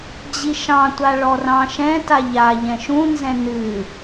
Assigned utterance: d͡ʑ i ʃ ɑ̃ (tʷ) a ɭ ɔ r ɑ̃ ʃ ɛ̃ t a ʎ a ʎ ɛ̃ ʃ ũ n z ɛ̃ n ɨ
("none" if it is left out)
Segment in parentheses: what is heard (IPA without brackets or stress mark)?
tʷ